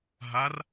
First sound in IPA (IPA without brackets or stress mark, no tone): ɦ